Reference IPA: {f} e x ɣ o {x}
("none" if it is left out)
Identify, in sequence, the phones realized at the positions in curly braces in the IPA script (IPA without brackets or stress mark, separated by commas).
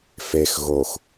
f, x